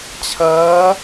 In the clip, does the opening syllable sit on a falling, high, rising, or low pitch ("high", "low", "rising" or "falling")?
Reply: rising